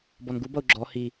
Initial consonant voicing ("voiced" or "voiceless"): voiced